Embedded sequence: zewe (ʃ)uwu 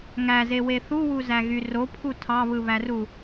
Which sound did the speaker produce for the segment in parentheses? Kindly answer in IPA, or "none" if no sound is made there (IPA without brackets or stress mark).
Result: θ